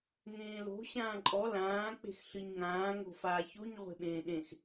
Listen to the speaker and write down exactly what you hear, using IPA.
ŋẽːlo̤ ɕãːǃʼɔ lãː k͡pe̤xɬɨɲŋãː ŋo̤faːçoɲ ʁʷe̤ɓẽːɗẽx

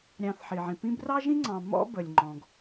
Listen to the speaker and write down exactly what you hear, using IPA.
ɾʲɑ̃˨θħi˩ʕĩ˩ pĩ˦brɑ˥ʒĩ˥ŋ͡ǀɑ̃˨ mɔ̰˥ bə˨lʲŋ͡ǃɔ̃˨ɡ

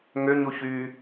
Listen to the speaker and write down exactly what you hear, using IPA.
ŋøɲuçyː

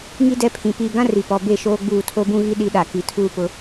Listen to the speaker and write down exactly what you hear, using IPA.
ŋi˦ dɛ˦pʰĩ˨ piː˨ɡã˦ ri˨pɔ˨be˦˨ ʃoː˦ɡ͡buː˦˨ tʰo˦bũ˦ɣi˦ ɗi˦ɗa˨ ki˨tʰuː˦pʊ˦

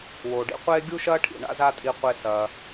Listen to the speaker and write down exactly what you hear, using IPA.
woː˩ɖḭ˧qʷeː˥ ɡʲu˥ʃɐː˥ʈʰḭ˩ ɳa̰˥za˥tʼi˧qʷe˧ sɐː˩

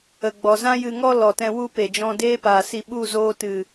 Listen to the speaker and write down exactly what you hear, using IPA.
ə˨ɡ͡bɔ˨ zã˧jɨ˨ŋɔ˧ lɔ˨tɛ̃˧ wu˧ pe˨d͡ʒɔ̃˧ deː˦paː˨si˧ ɓu˦˨zoː˧tɨ˨

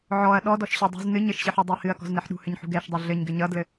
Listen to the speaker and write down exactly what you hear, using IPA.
ʕɔɐ̯ ɗɔdɔʃɕɔ dˤṳz nɨ ɲɘʃɕɨħɔdˤuɐ̯ hɨɐ̯kɔ̤znɛħ ɗṳhɘɲħṳ ɡɛʃdˤʌ ɮɘɲɡɘ ɲʌdlɘ

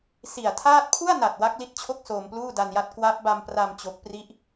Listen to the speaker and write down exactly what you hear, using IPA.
si˨˩a̯tʰaː˥˩t̚ pʰu˥˩a̯na˨˩t̚ wa˦˥k̚li˦˥t̚t͡ɕʰo˥˩k̚ soː˧mpluː˥˩da˧nja˦˥t̚ kwa˦˥p̚ ba˧mpra˧m t͡ɕo˦˥k̚pri˥˩ʔ

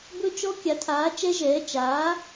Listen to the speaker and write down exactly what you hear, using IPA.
bɵ˦˥t͡ʃɔ˦˥ kʲa˨˥tʰaː˨˥t͡ʃɛ˦˥ʒɛː˨˥ t͡ʃaː˨˥

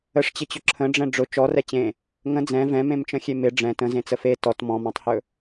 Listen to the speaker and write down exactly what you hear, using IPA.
əʂt͡ɕɪt͡ɕʊ ǁʰə̃ɖ͡ʐɛ̃ ɖ͡ʐʊ t͡ʃɔrɛ t͡ɕẽ | ŋə̃ d͡zɛ̃ vɛ̃mẽmt͡ʃə̃xʲe mɪ ɖ͡ʐɛ̃ tə̃zẽt͡sə fe tɔt mɔ̃mɔ̃tˤhɵ

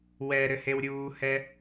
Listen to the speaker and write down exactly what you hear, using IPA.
wɛɾɘ hewɾʲuːhɛ

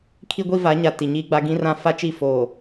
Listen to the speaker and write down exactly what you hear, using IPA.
kʰi˦ɡʷi˦va˨˦ɲa˨ ti˨ɲiː˦ɡ͡ba˦ ɡĩ˦rã˦ fa˦t͡ʃi˦˨ foː˨

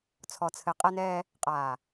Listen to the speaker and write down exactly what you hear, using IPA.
t͡sʰɔ˨t͡sʰɘ˨ qʼɛ˦nɛː˦ | qʼaː˨

